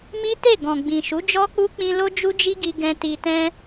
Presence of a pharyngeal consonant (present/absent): absent